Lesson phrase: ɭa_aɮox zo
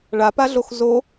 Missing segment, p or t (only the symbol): p